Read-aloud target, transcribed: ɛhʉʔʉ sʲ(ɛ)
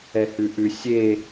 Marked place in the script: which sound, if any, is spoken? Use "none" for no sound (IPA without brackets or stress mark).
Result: e